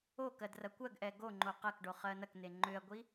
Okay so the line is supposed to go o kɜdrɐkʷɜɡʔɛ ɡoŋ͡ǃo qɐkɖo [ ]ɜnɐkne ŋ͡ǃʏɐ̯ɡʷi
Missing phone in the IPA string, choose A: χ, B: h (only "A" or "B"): A